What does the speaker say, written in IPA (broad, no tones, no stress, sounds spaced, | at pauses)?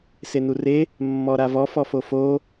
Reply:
s e n u r e | mː ɔ ɾ a v ɔ f ɔ f o f o